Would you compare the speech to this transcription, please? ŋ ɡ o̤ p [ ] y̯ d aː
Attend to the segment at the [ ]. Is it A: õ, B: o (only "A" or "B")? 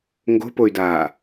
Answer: B